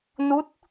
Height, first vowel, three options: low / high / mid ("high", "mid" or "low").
high